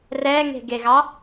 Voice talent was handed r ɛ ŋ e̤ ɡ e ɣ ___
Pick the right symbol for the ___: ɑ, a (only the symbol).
ɑ